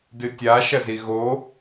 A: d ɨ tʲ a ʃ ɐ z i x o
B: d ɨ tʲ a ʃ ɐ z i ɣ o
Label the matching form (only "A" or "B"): B